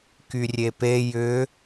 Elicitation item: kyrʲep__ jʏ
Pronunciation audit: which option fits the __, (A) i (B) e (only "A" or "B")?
B